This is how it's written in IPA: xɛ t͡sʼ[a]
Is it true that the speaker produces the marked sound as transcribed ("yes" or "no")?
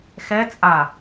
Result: yes